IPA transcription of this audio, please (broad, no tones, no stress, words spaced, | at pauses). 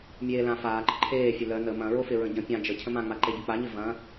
mʲeːlã faːǃə ǃʰeːfʲʊ lœ nə mɐ̃ɹofɪ ɹə̃ɟə̃ pʲã d͡ʒə cʰə̃mãŋ͡ma ǃeɟʊk͡paɲɪ vɐ̃